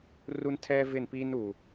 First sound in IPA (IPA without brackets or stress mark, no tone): r